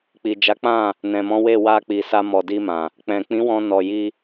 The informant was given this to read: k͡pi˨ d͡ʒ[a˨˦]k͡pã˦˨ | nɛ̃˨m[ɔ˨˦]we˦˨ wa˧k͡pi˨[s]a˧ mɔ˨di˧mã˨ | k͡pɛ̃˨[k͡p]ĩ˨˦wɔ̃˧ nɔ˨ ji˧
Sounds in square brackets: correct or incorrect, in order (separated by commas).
correct, incorrect, correct, correct